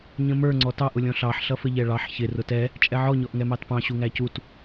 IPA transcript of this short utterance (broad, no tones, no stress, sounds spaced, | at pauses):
ɲ ə̃ m ə˞ ŋ͡ǀ ɔ t ɑ ʔ ʊ lʲ ɔ̃ ɬ ɑ ħ ɬ ʌ f ə ʎ ɛ ɭ ɑ ħ ç ɪ r ʊ t ɛ | t͡ʃʼ ɛ ʕ ɔ ɲ ɔ ʔ ŋ ɛ m ɑ t p ɑ̃ ɕ u ŋ æ c u t